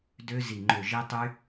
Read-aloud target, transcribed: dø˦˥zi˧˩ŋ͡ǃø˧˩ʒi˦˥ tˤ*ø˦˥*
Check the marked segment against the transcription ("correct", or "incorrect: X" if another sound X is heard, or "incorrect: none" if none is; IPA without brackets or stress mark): incorrect: y˦˥